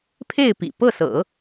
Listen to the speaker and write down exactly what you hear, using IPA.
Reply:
pʰ e˥˩ ɪ̯ p ḭ˨˩ p ɤ˥˩ s ɤ̰˨˩˦

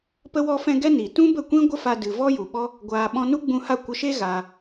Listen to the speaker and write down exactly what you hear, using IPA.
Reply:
p ə˧ w ɔ˧ f ɛ̃˧ ɡ ɛ˦ n iː˨ t ũ˦ b ə˦˨ kʷ ĩ˦ ɡʷ ə˦ f a˧ d ɨ˨ v ɔ˦ j u˨ ɓ ɔ˦ | ɡʷ aː˧ ɓ ɔ̃˧ n u˦ ɡ͡b ũ˧ h a˦˨ kʷ ə˧ ʃ e˦ ɣ aː˧

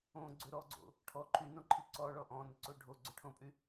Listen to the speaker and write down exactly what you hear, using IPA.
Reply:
õ ɡ͡ǀ ʏ ɾ ɔ ɡ͡ǀ o̰ | ʈʰ ɔ ǃʰ y n õ ǃʰ i ǀ ɔ ɭ ɔ ʔ ɔ̃ n ʏ ǀ o ɖʱ o ɡ͡ǀ ʏ ʈʰ õ pʼ y

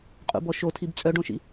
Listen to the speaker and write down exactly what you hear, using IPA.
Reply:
qʼ ṵ b ɔ ʃ o tʰ i b t͡sʼ œ ɖ õ ʃ ḭ

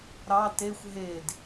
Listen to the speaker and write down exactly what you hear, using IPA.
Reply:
ɾ ɑ t e xʷ ɦ e d

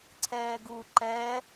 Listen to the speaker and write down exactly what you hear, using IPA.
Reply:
ǀʰ ɛː ɡ u ǃ ɛ

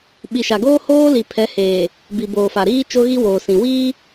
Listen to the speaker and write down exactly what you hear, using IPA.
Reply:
ɓ i˨ ʃ a˨ ɡ oː˦ h oː˦ l i˨ pʰ ɛ˨˦ h eː˨ | b i˨ b oː˨ f a˨ ɾ iː˦ t͡ʃ o˦ ɣ i˦ w oː˨ s ĩ˨ w iː˦

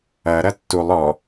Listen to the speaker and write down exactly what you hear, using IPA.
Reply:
ɐ ɾ ɐ tː u lˠ ɔ

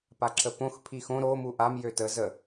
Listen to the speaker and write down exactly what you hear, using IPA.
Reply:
p a ǁʰ ə p õ x pʰ i x õ ɾ o m u ʔ a m j ø t ə z ə

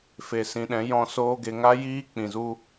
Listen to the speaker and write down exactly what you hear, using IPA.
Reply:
f e˨ s ĩ˨ ɗ ɛ̃˨˦ j ɔ̃˧ s oː˧ ɡ e˨ ŋ a˦ j iː˦ k͡p ĩ˨ z u˦

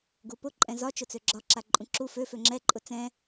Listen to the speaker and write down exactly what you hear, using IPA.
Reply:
ɡ u p ʊ ǃʼ ɛ̃ z ɒ t͡ʃ ʊ t͡s ø ɡ͡ǁ ɒ ǁ a ǃʼ ũ ǁ u f ø f ø ŋ͡ǁ ɛ ǃʼ ʊ t͡s ɛ̃

